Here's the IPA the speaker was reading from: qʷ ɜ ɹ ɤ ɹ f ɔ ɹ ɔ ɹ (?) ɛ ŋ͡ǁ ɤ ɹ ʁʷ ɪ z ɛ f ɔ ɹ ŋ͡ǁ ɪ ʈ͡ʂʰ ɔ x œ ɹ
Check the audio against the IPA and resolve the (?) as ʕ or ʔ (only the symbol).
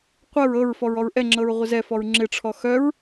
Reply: ʔ